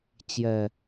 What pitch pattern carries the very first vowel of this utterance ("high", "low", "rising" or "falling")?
low